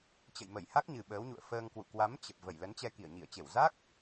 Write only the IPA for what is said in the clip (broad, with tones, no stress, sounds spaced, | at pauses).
t͡ɕ ə̰˧˨ j m ə˧˩ j h a˦˥ k̚ ɲ ɨ˨˩ ɓ əː˨˦ w ɲ ṵ˧˨ ə̯ f əː˧ ŋ k w ṵ˧˨ k w a˨˦ m t͡ɕ ə˨˩ p̚ v ə˧˩ j l ə˨˦ n t͡ɕ ɛ˧ k i˧˩ ə̯ ɲ i˧˩ ə̯ t͡ɕ e˧˩ w z a˦˥ k̚